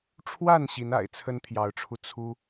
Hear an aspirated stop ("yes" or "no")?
yes